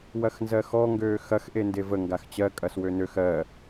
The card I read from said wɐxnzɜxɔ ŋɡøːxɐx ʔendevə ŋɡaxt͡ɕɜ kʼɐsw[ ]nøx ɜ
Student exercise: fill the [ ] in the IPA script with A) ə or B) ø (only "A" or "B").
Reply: B